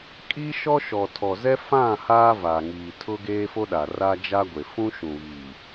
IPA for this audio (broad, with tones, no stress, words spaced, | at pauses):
kʼi˦ʃɔ˦ʃɔ˨ tʰɔ˨zɛ˦ fã˦˨ haː˦vaː˨ŋiː˨ tʰʊ˦ɡeː˦ fo˦ɗa˨ ra˦d͡ʒa˦ɡʷe˨ fũ˦ʃũ˨ βiː˨